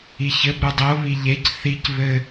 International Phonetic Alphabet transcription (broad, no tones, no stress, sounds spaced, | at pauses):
i ç ɘ b ɾ u dˤ o β i ʎ e c θ i c β ɘ